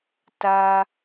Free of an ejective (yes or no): yes